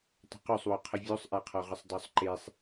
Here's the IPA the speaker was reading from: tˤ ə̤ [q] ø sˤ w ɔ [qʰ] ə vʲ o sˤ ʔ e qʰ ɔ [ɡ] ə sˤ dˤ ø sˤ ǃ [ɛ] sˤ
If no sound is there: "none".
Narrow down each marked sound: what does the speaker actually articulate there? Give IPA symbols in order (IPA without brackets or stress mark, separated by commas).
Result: q, qʰ, ʁ, e